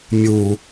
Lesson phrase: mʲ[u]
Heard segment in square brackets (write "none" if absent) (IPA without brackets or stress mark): u